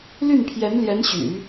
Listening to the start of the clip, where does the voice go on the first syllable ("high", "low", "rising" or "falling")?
falling